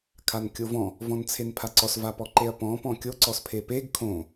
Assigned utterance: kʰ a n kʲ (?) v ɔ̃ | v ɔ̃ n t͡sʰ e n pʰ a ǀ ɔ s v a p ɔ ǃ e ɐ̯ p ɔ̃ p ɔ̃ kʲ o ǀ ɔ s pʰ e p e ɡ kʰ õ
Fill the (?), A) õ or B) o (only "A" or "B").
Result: B